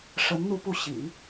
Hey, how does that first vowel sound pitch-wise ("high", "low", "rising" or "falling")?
rising